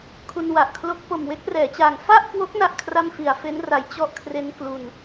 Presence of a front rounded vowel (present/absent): absent